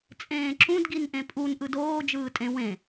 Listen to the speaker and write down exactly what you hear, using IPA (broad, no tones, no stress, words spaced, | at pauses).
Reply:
t͡sʼẽːǁũd ɡinʔẽpʼun ʔɯdoː d͡ʒɯːtʼẽ wẽ